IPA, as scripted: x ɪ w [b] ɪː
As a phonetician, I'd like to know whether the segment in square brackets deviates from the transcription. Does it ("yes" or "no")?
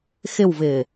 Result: yes